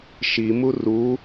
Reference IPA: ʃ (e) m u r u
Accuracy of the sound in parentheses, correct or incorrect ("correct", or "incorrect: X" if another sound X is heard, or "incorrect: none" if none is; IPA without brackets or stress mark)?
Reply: incorrect: i